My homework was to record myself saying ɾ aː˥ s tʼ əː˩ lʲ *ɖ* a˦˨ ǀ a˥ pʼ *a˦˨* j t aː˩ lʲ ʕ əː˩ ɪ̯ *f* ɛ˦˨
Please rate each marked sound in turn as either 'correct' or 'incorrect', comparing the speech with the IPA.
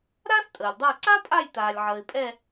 incorrect, correct, incorrect

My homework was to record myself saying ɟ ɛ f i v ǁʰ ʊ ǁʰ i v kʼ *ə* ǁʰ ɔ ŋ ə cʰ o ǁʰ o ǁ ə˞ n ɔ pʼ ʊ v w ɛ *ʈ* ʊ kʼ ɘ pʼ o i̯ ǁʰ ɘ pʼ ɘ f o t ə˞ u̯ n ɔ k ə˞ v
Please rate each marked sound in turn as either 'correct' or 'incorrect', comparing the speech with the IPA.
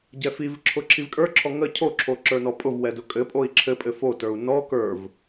incorrect, incorrect

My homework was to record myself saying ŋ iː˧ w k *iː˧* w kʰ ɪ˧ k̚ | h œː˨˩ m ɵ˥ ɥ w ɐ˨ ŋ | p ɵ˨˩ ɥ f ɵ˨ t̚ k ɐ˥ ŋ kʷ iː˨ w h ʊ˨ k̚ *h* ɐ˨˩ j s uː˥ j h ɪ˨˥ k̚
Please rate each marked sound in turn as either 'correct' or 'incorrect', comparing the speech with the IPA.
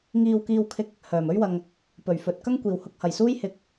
correct, correct

